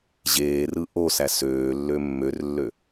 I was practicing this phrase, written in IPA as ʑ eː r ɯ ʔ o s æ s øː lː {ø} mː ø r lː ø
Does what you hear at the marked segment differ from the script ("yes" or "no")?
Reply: no